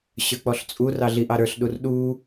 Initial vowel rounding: unrounded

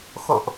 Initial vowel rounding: rounded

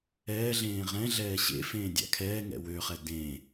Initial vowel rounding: unrounded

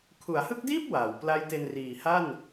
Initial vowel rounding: rounded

